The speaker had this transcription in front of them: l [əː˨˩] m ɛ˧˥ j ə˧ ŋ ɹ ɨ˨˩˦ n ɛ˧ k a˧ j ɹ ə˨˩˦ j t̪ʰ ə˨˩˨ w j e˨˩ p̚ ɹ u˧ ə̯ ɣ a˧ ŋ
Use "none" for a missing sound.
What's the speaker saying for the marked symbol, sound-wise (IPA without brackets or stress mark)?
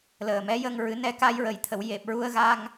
əː˨˩